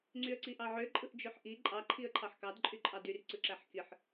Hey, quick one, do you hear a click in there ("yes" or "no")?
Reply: yes